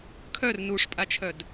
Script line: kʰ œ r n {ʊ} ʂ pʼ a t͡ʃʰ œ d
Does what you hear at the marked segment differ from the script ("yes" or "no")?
yes